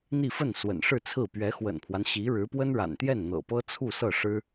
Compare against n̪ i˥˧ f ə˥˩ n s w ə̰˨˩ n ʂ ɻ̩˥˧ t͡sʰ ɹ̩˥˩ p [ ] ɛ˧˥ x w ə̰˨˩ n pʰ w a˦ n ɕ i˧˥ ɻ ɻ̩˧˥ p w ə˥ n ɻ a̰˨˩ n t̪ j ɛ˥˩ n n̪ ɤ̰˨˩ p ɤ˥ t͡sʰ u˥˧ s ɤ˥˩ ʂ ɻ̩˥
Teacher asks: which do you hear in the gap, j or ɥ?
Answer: ɥ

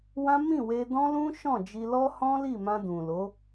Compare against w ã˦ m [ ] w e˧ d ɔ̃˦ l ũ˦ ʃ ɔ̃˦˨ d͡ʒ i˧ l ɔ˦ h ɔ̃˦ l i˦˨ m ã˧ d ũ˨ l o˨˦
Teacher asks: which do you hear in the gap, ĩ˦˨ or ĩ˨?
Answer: ĩ˦˨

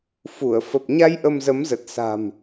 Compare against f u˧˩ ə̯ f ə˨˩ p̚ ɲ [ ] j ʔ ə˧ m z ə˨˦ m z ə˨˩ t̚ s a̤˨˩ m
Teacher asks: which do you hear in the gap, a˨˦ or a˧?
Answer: a˧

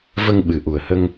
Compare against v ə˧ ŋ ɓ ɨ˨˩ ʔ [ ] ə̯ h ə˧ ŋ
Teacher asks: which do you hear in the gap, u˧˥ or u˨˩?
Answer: u˨˩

